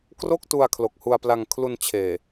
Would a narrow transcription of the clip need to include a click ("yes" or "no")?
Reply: no